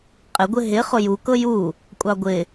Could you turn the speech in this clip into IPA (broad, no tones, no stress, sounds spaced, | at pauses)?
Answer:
qʼ ɪ ɡʷ ɪ ɦ ɪ χ ʊ j u k ɤ j u | kʷʼ ɑ ɡʷ ɪ